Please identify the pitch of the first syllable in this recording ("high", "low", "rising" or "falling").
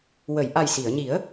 low